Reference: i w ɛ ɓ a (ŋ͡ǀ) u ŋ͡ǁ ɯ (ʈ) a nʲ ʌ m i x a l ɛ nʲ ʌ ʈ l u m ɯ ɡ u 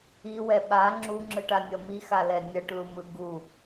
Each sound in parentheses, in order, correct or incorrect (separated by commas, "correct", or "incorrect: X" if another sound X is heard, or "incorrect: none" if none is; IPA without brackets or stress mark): incorrect: ŋ͡ǁ, correct